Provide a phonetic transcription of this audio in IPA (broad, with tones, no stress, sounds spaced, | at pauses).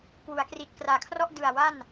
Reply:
k w u˩˦ a̯ k r i˨˩ t̚ k r aː˨˩ kʰ r ɔ˥˩ ʔ d ɯ˨˩ a̯ w a˥˩ n